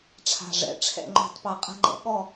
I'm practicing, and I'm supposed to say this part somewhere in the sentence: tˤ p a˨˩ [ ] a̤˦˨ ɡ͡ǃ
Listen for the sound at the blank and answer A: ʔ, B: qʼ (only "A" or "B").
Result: B